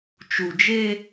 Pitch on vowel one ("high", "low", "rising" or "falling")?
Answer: low